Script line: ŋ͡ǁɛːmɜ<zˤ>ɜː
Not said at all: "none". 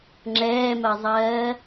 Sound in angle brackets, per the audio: zˤ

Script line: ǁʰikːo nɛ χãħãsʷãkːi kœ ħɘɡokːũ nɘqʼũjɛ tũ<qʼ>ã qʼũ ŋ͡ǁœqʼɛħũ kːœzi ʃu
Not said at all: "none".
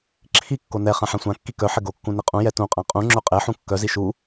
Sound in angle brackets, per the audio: qʼ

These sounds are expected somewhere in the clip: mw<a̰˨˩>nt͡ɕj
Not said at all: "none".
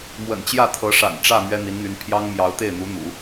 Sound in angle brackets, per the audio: ə̰˨˩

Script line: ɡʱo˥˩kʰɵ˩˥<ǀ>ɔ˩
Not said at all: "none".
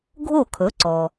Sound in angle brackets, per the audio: ǀ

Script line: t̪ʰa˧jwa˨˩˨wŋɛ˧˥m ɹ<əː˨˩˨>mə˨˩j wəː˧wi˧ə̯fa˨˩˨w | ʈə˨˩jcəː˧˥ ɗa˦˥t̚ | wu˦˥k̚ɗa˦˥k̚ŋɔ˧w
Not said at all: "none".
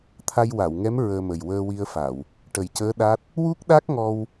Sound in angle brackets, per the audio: əː˧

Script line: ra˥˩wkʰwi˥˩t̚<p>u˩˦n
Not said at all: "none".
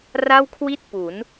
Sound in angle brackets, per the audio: p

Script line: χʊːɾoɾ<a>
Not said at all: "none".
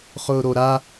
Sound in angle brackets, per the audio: a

